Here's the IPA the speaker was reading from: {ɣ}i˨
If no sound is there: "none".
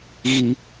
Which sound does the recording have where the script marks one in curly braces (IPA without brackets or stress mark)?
ɣ